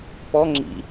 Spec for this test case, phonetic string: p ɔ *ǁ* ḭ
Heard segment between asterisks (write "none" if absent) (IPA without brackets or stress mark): ŋ͡ǁ